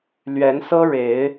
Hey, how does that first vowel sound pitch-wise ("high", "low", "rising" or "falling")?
rising